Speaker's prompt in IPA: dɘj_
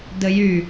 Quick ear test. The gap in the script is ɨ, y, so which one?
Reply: y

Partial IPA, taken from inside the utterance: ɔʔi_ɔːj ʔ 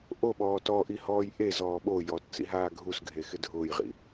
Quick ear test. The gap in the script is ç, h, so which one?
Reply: h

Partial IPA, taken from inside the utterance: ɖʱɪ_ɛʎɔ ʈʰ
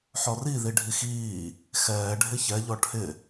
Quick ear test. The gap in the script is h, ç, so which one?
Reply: ç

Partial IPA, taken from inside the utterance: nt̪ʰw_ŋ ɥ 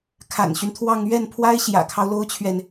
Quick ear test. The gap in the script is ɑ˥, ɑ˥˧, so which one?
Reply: ɑ˥˧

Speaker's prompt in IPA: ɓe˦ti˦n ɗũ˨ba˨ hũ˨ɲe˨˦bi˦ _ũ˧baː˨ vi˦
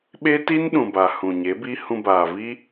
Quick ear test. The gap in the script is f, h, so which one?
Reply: h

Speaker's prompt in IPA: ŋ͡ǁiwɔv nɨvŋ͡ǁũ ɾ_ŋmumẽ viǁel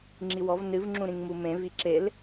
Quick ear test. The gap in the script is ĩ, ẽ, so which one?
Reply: ĩ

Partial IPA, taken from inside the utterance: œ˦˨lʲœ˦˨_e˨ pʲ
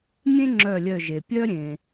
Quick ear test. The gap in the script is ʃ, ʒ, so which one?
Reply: ʒ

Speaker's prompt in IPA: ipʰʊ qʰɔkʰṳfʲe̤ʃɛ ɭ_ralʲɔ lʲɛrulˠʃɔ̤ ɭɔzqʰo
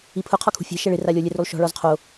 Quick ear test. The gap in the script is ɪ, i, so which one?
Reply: ɪ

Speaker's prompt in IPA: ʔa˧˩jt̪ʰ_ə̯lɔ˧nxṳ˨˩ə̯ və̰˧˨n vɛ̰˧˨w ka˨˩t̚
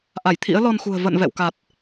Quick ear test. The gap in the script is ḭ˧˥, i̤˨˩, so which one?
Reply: ḭ˧˥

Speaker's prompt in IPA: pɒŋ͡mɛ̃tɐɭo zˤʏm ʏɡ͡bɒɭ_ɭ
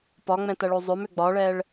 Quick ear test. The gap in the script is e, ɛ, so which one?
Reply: ɛ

